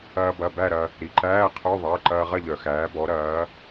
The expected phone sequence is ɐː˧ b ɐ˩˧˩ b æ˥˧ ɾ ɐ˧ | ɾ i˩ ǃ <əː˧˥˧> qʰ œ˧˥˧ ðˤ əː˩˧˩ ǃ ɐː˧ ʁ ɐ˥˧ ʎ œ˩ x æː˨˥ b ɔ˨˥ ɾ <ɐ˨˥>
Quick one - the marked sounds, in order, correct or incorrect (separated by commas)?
incorrect, incorrect